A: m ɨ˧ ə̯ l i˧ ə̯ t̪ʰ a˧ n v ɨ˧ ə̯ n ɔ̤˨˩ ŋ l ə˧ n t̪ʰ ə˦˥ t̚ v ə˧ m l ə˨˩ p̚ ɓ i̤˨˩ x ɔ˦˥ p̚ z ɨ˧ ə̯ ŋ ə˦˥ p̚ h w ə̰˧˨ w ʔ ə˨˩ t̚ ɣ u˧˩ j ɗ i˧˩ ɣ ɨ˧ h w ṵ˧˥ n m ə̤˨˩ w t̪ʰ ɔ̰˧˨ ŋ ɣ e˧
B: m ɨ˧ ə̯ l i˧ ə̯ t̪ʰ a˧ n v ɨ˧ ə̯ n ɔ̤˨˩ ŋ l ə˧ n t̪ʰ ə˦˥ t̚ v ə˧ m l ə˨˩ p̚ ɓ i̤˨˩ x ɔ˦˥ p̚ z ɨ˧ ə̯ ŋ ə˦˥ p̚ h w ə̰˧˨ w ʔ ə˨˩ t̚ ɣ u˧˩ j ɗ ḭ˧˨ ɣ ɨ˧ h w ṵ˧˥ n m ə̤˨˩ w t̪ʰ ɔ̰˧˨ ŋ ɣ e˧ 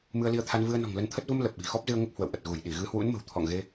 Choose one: A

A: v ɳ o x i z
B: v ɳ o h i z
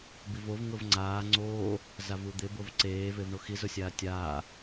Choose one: A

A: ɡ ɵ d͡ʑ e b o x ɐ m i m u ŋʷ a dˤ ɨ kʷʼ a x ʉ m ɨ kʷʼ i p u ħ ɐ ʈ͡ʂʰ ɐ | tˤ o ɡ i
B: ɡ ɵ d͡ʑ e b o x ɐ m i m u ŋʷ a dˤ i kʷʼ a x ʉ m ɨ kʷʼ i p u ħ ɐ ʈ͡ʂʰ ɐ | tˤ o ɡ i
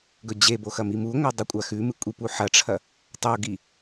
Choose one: B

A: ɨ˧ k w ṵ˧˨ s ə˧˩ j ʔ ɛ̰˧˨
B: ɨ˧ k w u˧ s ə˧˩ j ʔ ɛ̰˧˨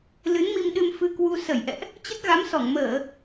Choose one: B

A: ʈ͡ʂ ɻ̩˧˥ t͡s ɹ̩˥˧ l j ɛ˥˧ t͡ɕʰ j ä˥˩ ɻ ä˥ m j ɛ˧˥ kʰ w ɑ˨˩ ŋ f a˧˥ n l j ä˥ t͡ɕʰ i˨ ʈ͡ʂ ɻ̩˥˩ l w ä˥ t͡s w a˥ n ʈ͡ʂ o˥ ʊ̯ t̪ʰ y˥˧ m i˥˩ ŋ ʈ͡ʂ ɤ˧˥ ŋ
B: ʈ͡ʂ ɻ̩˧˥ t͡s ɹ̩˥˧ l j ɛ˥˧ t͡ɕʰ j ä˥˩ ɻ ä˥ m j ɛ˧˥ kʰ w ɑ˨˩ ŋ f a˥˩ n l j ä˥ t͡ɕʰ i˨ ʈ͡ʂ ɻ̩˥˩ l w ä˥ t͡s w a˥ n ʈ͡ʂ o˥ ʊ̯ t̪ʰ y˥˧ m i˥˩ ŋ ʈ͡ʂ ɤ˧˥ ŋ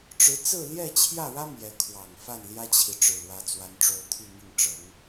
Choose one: B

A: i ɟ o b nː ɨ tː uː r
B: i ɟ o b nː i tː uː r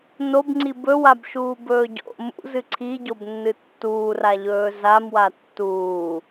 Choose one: A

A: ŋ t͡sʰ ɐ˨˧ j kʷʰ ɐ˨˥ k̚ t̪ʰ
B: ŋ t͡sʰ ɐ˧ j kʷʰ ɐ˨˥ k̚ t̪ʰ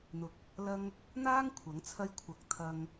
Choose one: B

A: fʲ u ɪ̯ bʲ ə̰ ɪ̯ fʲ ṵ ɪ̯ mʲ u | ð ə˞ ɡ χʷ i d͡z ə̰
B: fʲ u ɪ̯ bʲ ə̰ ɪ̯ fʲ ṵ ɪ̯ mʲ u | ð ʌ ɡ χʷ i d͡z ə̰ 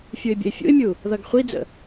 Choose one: B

